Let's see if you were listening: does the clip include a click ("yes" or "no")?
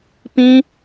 no